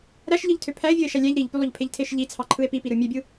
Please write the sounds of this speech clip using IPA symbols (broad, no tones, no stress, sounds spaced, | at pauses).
ɾ æ ʃ ʎ ɯ ʎ tʰ ø pʰ æ e̯ vʲ o e̯ ʃ æ lʲ æ ʎ ɾ i ʎ p y lˠ o ʎ pʰ e ʎ tʰ e ʃ ʎ i t͡sʰ ɑ ǃʰ ɯ e̯ p i p i ɾ ɯ mʲ ø bʲ ɯ